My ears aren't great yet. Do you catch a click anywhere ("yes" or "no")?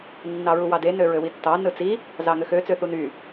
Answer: no